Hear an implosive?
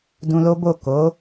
no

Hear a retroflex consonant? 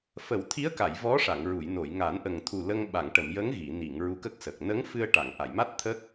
yes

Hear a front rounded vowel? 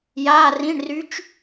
yes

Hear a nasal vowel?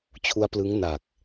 no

